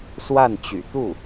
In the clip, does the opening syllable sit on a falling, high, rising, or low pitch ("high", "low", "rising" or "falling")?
falling